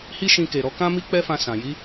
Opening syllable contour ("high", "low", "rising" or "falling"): high